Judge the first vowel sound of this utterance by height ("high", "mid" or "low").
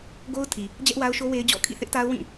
mid